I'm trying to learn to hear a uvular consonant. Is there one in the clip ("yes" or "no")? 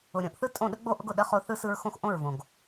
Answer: yes